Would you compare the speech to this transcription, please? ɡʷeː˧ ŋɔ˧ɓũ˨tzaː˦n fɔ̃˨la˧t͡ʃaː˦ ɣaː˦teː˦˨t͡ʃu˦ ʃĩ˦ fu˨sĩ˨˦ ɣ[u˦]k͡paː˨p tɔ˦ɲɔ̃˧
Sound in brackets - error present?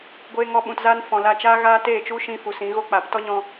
yes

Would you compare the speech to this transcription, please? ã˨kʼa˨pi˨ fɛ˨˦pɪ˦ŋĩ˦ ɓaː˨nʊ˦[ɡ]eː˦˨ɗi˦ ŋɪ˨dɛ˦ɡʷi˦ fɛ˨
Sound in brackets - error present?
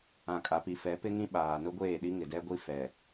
yes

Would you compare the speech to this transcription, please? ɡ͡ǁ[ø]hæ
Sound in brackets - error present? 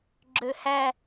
no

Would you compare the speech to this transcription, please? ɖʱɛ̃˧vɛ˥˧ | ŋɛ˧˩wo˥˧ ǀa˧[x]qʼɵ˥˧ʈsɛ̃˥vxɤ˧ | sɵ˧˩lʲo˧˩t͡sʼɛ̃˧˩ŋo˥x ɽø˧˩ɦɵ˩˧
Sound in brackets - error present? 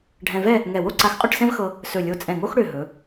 no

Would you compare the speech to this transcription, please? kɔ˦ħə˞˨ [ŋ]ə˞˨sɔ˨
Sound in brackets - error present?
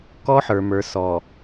yes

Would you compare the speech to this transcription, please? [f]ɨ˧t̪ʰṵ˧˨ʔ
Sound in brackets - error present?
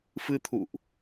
no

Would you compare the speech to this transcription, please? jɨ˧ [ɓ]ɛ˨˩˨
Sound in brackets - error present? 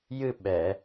no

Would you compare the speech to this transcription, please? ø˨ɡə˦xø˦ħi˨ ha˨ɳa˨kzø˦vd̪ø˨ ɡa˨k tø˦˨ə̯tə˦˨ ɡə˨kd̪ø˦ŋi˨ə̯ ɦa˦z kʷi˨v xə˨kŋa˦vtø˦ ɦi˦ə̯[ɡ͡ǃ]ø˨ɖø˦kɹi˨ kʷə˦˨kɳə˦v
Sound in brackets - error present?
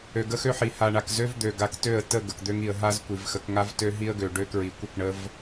yes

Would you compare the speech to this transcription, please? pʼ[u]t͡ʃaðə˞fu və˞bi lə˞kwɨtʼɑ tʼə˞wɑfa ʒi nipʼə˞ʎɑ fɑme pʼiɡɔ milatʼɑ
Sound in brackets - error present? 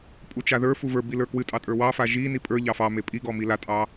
no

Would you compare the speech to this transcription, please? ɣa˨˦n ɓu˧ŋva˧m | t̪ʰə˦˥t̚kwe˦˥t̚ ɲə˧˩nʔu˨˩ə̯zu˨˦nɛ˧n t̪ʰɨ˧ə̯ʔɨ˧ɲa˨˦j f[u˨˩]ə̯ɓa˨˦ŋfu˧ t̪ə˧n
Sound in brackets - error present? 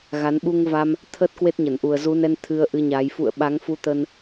yes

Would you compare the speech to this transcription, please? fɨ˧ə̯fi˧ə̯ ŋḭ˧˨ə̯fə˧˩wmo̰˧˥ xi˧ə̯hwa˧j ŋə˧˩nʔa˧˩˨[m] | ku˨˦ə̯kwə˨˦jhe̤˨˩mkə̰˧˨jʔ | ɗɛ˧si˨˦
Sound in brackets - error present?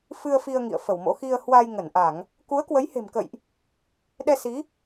yes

